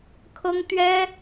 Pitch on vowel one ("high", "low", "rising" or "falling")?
high